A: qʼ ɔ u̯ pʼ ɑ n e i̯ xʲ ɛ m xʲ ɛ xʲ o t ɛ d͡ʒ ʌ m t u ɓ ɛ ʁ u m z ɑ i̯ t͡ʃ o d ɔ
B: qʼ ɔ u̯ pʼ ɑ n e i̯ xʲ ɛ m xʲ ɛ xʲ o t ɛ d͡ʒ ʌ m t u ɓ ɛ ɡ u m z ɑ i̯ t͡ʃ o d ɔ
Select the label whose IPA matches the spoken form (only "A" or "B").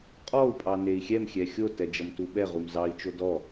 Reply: A